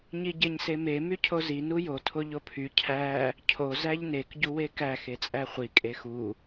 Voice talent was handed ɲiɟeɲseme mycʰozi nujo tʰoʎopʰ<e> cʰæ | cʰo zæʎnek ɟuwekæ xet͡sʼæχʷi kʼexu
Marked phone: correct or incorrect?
incorrect: y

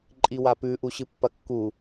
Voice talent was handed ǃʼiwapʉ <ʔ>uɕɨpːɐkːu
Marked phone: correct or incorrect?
correct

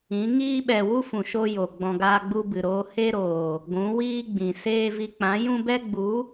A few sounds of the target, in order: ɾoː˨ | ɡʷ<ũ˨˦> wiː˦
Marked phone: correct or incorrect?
correct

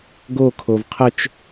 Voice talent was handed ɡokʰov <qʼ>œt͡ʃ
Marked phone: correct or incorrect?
incorrect: qʰ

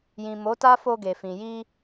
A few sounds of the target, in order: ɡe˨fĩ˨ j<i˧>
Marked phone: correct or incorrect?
correct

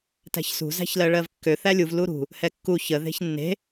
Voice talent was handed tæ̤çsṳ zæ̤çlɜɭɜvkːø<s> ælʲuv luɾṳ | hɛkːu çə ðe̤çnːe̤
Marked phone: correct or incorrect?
incorrect: θ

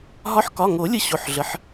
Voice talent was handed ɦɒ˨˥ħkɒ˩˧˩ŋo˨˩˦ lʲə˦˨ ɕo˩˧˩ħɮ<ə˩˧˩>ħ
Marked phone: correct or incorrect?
correct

